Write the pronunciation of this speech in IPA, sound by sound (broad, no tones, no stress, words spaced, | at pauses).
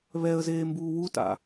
βɛə̯zeːmbuː wuta̰